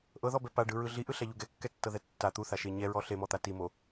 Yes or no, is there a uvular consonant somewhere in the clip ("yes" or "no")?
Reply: no